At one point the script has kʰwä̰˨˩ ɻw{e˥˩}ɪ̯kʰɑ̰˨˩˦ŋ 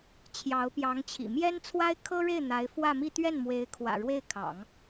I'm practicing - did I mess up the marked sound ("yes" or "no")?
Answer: no